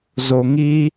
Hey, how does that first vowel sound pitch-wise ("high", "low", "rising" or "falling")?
low